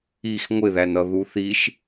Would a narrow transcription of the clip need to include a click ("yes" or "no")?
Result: no